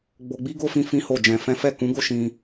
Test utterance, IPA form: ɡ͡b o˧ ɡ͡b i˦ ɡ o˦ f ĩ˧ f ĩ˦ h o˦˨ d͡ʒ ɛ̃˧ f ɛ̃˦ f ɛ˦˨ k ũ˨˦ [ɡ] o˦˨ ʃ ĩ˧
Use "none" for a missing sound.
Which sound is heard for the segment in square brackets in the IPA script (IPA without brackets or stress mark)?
ɡ